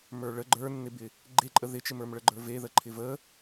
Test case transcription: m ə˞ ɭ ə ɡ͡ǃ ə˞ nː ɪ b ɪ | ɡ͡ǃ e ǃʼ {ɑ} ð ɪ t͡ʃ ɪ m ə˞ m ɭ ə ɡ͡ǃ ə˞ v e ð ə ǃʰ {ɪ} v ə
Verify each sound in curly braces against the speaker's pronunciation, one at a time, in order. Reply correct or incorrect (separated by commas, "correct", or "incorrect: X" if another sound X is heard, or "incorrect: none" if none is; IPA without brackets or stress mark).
incorrect: ə, correct